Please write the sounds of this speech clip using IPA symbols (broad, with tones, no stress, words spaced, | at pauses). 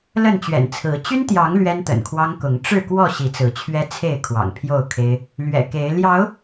lə˥˨nt͡ɕɥɛ̰˨˩nt͡sʰɹ̩˨˦ t͡ɕy˦nt̪jɑ˨˦ŋ lɥɛ˦nt̪ə̰˨˩nkʰwɑ˦ŋkʊ˨˦ŋ ʈ͡ʂɻ̩˥˨kwɔ˥˨ ɕi˨˦t͡sɹ̩˨˦t͡ɕʰɥɛ˦t͡sʰe˥˨ɪ̯ kʰwɑ̰˨˩ŋpʰjo˥˨ʊ̯kʰe˦ɪ̯ | lɥɛ̰˨˩ke˨˦ɪ̯ ljɑ˨˦ʊ̯